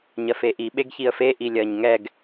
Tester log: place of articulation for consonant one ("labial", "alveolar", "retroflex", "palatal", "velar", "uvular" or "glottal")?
palatal